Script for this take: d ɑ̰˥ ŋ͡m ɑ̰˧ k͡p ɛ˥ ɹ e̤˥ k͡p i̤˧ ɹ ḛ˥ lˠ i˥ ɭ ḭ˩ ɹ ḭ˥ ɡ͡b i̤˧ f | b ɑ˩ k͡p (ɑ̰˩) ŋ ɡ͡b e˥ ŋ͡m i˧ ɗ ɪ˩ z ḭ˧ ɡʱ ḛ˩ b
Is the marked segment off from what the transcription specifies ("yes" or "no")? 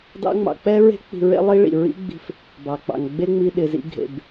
no